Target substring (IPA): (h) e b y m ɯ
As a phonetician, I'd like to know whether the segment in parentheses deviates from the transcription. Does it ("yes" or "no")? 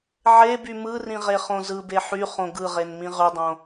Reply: yes